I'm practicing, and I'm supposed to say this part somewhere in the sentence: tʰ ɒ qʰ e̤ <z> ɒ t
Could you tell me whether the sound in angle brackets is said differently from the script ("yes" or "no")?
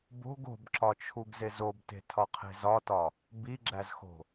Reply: no